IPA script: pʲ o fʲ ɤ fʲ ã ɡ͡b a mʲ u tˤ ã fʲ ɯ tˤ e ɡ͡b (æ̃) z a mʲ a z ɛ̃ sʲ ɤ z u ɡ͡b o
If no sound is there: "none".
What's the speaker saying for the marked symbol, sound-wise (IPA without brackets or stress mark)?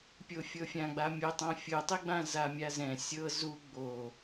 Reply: ã